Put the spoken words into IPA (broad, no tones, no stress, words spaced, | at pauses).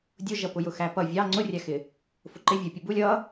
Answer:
dʲʊʒʌpʊjʊ xæpʌ vʲɑ ŋ͡ǀʊrʲæxɪ | fʊǃɪ vʲʊ pʲʊbulʲ ʌ